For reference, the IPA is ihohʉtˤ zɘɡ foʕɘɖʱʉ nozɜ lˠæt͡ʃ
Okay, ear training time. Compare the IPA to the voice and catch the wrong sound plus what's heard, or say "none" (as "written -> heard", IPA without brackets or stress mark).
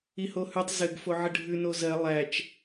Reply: none